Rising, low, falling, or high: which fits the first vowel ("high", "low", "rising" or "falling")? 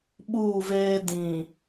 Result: falling